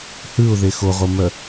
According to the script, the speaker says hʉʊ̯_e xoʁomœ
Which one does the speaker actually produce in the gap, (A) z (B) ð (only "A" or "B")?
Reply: B